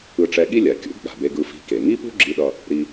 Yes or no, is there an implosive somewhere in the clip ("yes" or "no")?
yes